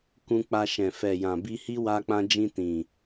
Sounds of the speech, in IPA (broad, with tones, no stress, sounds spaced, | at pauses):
k ũ˧ k͡p a˧ ʃ ɛ̃˨ f ɛ˨ j ã˨ b i˧ h i˦ w a˧ k͡p ã˧ d͡ʒ ĩ˧ t ĩ˨